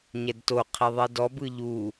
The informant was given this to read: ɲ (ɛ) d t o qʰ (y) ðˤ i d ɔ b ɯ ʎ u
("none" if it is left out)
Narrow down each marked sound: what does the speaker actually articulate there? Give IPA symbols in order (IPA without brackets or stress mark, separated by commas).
ɛ, i